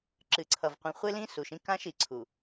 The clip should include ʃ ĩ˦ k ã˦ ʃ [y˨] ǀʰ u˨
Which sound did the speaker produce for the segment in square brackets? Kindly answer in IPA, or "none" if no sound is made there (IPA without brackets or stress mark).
i˨